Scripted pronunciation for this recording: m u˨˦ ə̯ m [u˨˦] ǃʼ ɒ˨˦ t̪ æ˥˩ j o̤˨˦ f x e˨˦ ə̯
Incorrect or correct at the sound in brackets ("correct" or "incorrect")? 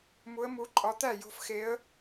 correct